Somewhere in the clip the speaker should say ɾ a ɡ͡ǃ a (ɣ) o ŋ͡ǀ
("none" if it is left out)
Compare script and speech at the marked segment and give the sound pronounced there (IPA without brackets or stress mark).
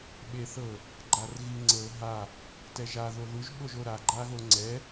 ɣ